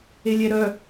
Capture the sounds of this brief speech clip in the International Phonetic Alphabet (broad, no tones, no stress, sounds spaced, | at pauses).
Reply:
e lʲ ɛ ɾ œ